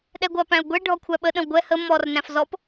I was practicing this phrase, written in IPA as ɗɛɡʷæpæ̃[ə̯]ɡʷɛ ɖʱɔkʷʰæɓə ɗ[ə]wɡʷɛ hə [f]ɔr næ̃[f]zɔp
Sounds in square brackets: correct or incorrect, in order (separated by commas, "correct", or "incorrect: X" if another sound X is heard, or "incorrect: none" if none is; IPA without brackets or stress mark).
incorrect: ʊ̯, incorrect: ə̃, incorrect: m, correct